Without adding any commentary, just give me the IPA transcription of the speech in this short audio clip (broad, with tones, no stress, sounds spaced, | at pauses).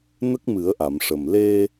n ə˦˥ k̚ m ɨ˨˩˦ ə̯ ʔ a˨˩˨ m ʂ ə˨˩ m l e˧